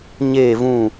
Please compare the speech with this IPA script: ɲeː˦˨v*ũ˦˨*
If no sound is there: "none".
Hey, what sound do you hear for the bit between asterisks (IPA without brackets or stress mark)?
ũ˦˨